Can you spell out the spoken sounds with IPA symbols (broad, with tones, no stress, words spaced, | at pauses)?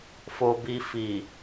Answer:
fo˨ bi˨fi˨